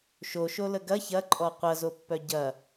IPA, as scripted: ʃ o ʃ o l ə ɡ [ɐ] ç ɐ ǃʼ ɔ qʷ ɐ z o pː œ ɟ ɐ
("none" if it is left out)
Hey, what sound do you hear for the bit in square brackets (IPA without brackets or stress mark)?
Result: ɐ